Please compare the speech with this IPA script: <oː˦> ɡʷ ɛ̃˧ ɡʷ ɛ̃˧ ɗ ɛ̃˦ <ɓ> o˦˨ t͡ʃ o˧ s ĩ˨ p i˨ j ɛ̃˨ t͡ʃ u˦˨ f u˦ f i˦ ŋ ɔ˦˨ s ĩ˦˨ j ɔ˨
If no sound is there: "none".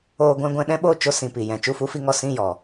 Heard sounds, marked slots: oː˧, ɓ

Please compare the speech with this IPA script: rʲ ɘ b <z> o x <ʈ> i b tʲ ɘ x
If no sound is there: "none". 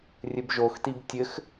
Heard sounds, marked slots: ʒ, t

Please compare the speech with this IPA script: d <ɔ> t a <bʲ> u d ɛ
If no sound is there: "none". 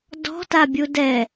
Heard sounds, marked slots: ɔ̤, bʲ

